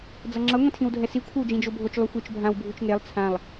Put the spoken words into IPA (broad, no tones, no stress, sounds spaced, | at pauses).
d͡z ʌ ŋ͡ǁ ʌ ŋʷ ĩ tʰ ĩ w dʱ ɛ s i kʷʰ ʌ w d͡ʒ ĩ d͡ʒ o bʱ o t͡ʃ lˠ u xʷ i t͡ʃ bʱ ã w bʱ u t͡ʃ ŋ e lˠ t͡sʰ ã lˠ